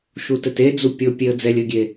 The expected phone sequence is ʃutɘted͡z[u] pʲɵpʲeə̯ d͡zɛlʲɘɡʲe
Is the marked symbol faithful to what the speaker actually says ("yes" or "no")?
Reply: yes